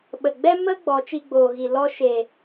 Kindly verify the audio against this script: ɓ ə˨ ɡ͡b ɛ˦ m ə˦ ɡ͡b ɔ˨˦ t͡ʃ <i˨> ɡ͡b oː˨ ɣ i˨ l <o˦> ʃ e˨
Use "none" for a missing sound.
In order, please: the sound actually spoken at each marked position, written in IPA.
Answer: i˧, ɔ˦

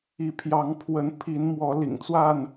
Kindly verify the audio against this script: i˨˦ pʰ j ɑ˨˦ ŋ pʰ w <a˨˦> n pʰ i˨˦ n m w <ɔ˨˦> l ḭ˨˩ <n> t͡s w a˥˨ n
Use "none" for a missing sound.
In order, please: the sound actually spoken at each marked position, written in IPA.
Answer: ə˨˦, ɔ˨˦, ŋ

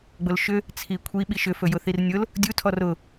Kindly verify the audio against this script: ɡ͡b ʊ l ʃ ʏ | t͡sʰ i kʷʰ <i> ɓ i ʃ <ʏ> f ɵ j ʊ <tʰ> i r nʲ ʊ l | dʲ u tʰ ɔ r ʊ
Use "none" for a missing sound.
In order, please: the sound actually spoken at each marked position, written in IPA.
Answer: i, ʏ, θ

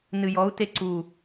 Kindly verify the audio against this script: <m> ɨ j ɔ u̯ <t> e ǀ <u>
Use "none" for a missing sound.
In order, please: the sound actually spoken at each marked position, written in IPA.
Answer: n, t, u

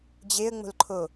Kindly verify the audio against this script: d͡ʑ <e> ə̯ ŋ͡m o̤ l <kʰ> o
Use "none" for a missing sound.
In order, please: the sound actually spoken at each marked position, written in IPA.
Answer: e, ǃʰ

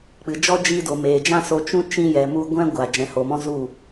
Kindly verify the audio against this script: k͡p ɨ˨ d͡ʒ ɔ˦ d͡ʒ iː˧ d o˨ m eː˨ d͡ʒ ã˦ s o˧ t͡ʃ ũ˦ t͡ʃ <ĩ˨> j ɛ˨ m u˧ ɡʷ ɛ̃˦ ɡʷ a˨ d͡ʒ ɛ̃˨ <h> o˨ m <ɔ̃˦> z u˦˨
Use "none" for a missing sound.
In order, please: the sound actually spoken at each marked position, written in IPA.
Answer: ĩ˧, h, ɔ̃˦

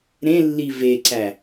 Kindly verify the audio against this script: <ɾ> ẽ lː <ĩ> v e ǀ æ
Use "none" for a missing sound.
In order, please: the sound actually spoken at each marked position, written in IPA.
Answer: ɾ, i

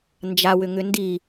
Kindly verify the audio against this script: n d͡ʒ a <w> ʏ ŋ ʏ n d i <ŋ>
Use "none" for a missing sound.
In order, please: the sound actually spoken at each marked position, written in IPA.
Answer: w, none

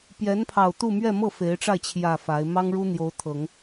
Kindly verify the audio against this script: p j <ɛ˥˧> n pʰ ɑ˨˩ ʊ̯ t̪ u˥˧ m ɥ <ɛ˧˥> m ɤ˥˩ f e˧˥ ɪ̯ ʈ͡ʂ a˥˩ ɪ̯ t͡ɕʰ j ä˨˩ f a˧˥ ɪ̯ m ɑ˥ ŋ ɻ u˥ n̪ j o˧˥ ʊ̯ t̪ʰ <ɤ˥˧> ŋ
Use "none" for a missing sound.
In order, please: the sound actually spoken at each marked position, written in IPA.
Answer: ɛ˧˥, ɛ˥˧, ɤ˨˩˦

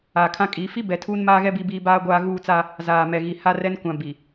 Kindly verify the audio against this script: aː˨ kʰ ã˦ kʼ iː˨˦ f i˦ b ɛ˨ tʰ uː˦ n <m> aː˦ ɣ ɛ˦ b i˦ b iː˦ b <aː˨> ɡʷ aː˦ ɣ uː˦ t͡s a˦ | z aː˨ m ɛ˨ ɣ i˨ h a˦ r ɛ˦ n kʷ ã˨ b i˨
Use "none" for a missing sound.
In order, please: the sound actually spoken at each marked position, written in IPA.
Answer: m, aː˦

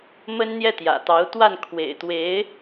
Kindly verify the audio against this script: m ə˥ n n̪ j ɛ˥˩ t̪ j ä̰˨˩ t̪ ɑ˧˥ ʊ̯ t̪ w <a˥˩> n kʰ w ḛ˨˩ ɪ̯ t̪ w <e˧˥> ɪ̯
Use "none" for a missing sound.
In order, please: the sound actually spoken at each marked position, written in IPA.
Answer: a˥˩, e˧˥

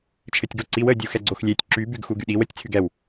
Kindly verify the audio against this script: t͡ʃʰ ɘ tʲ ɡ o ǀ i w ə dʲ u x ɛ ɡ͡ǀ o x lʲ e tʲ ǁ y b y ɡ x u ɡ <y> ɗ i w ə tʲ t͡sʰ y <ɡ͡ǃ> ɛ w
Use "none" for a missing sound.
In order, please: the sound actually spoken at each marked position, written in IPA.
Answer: y, ɡ

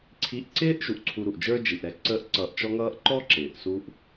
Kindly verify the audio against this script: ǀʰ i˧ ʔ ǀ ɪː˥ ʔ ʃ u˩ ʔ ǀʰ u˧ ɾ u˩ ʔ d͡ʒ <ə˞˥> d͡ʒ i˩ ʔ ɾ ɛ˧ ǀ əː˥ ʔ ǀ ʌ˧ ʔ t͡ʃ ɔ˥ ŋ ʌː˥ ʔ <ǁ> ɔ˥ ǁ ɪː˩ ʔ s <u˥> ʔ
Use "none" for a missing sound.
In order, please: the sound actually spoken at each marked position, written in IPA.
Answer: ə˞˥, ǃ, u˥

